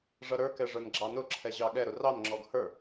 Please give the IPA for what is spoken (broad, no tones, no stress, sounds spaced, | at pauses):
ʐ ʌ ɾ ə˞ k ɛ ʐ ə˞ n ɡ͡ǁ ɑ n ʊ ǁʰ ɛ ʑ ɑ ɠ ɛ ɾ ʊ r ɑ n ŋ͡ǁ ɔ ɡ h ə˞